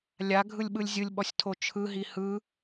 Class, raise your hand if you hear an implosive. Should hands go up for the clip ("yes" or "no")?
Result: yes